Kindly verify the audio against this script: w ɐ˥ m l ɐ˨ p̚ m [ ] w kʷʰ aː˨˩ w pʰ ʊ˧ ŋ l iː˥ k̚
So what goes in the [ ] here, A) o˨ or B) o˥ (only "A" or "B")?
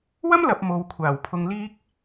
A